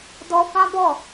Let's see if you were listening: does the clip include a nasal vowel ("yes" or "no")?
yes